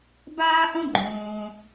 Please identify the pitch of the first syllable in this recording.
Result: high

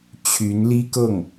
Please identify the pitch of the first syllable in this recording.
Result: rising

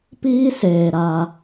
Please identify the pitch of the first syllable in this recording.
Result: high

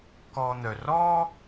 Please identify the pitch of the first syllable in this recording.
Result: low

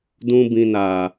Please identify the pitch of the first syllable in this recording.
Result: high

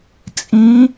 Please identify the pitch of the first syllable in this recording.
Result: rising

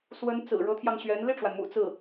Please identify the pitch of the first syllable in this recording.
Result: rising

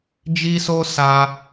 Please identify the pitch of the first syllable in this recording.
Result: high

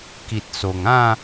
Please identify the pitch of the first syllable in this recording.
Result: low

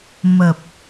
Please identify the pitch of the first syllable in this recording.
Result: low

